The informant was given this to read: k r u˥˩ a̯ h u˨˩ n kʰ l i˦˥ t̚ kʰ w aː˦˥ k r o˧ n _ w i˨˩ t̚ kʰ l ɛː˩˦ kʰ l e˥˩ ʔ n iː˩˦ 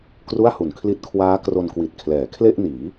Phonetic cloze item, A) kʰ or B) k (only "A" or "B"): B